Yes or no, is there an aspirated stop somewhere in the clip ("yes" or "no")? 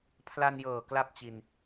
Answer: yes